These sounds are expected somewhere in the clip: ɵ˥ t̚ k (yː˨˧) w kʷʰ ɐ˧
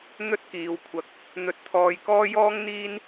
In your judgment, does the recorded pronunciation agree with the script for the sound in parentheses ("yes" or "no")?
no